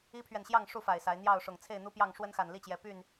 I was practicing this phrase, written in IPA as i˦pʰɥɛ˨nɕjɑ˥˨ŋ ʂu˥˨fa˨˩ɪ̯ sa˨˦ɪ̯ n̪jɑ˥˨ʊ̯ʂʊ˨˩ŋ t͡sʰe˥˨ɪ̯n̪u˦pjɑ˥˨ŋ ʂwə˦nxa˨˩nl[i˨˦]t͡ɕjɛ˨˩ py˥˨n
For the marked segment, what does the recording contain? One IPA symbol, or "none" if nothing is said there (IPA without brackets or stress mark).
i˥˨